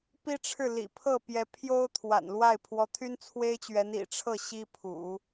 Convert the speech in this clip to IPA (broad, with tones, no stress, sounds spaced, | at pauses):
p i˥ ʈ͡ʂʰ ɻ̩˥˩ l ḭ˨˩ pʰ ɤ˥˩ p j ɛ˧˥ pʰ j o˥ ʊ̯ t̪ʰ w a̰˨˩ n l w a˥˩ ɪ̯ pʰ w ɔ˧˥ t̪ʰ y˥ n t͡sʰ w e˥ ɪ̯ t͡ɕ ɥ ɛ˧˥ n ḭ˨˩ ʈ͡ʂʰ ɤ˥˩ ɕ i˥ pʰ ṵ˨˩˦